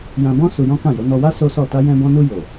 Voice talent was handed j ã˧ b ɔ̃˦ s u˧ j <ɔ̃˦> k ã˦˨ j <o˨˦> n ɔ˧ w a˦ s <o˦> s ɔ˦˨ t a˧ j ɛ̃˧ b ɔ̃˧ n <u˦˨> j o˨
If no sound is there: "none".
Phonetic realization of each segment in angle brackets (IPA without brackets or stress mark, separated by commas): ɔ̃˦, o˨˦, o˦, u˧